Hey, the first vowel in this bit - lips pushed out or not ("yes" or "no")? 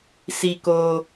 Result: no